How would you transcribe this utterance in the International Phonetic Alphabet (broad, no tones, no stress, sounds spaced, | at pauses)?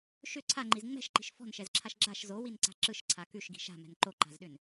ʃ ʏ ǀʰ a ŋ͡ǃ i z ŋ͡m ɛ̤ ʃ ǃ i̤ ʃ f ɔ̤ n ʃ ɛ z ǁʰ a ʃ ɡ͡ǁ a ʃ z o w i n ǀ a̤ ǁ ɯ ʃ ǀʰ a k ʉ ʃ ɡ i̤ ʃ a̤ m ɛ̤ n ǃ o ǃ a̤ z ɗ ʏ n